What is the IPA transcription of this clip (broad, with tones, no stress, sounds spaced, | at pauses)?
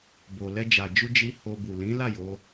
b o˨ l ɛ˧ d͡ʒ a˨ d͡ʒ u˧ d͡ʒ i˧ h o˧ b u˨ l ĩ˨˦ l a˦˨ j o˨˦